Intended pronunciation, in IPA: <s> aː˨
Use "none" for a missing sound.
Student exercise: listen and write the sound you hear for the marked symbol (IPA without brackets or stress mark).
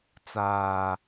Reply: t͡s